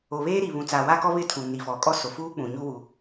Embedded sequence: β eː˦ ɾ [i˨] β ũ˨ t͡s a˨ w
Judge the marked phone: correct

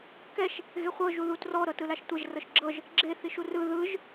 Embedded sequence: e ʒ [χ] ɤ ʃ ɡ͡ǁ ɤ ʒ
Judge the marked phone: incorrect: r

